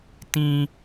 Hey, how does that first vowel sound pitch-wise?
high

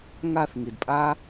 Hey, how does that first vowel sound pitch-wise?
low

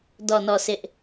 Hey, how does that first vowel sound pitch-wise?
falling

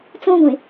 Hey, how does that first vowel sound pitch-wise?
high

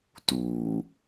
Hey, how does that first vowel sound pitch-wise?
low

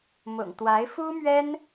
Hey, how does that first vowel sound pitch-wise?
low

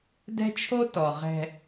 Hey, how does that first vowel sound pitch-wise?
high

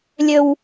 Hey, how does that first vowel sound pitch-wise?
high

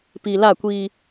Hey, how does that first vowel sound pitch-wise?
low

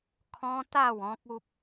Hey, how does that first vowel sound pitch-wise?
high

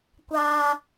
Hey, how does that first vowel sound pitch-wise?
low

